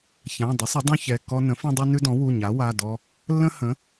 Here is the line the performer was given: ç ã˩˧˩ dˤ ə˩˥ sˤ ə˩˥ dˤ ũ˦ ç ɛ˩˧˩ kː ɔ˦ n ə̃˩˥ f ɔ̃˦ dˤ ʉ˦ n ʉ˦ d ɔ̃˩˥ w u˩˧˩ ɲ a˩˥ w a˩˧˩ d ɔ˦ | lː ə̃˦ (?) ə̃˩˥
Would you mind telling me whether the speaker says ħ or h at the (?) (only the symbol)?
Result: h